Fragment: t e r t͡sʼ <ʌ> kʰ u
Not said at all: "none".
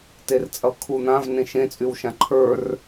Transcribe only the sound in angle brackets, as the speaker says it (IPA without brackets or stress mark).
ʌ